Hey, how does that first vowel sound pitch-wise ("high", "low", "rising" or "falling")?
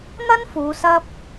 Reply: high